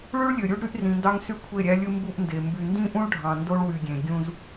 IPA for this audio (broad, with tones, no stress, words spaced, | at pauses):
ɭy˦ɭlʲø˨ ɾʲu˦ɖɾy˦ʔrĩ˨ndɑ˦ŋ sy˦kʷʰe˦˨ɾʲæ˦lʲɯ˦ mbu˦ʔnde˨ mby˨ndĩ˦ʔũ˦ɭɖʱɑ̃˨ ndo˦ɭwy˨ɡʲẽ˨ ɡʲũ˦z